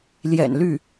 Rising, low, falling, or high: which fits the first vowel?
low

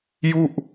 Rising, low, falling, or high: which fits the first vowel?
falling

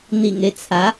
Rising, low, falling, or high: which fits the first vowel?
low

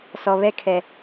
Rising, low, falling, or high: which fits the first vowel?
low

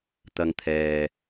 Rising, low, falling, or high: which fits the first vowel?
high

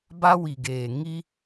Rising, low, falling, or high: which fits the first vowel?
high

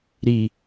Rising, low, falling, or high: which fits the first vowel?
low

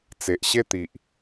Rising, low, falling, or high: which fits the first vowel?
low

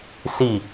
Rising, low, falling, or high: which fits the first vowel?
falling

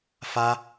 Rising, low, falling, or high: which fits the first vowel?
high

